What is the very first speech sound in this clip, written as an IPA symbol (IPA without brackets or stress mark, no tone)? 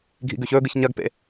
ɡʱ